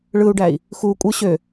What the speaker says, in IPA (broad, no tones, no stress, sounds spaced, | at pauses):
ɭ ɯ u̯ ɖ æ i̯ | x u kʷʼ ɯ ɕ ø